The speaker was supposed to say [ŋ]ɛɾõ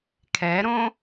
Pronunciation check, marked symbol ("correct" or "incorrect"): incorrect